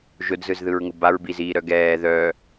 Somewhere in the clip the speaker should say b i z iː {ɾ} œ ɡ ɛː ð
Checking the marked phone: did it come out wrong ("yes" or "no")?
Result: no